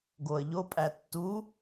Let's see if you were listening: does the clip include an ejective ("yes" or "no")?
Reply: yes